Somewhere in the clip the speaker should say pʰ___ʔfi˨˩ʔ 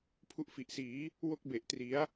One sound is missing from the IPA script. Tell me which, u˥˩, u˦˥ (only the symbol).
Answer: u˦˥